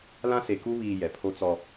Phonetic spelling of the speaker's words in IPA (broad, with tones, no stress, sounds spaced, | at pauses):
l ã˦ s e˨ k u˦ β iː˨ j ɛ˨ pʰ o˦ t͡s ɔ˦